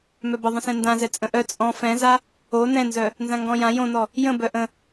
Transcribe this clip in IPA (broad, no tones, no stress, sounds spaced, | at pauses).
m œ b ə ðˤ ə̃ s ɛ̃ n d ã z ɛ t͡sʼ ə̃ ʔ œ t͡sʼ ɔ̃ f ɛ̃ z a | o n ɛ̃ n z œ | n z ã ŋ ɡ ɔ̃ j ã j õ n ɔ | j ə̃ b œ ʔ ə̃